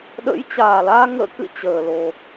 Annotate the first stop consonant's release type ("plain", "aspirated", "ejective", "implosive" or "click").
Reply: implosive